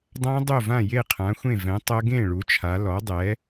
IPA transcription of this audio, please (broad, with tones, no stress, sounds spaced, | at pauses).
dˤ ã˦˥ dˤ o˥˩ v ã˥˩ j e˥˩ qʰ ã˩˥ xʷ ẽ˥˩ v ɛ̃˩˥ tˤ ɤ˦˥ ɡ ẽ˥˩ ɭ u˩˥ t͡ʃʰ a˩˥ l ɔ˩˥ dˤ ɛ˩˥